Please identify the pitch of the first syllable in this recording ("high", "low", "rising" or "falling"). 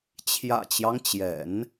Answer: low